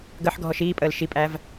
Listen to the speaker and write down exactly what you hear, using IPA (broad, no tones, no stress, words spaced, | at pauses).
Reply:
ɡəħɡʱɔʃ iːpʼəːl ʃipʼæv